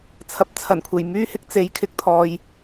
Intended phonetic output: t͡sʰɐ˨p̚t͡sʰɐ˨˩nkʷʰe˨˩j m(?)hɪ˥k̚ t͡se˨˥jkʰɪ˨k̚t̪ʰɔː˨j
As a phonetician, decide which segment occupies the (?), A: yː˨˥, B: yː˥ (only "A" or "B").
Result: B